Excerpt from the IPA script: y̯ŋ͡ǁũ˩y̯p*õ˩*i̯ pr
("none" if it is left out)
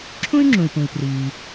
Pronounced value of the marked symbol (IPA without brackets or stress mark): ũ˩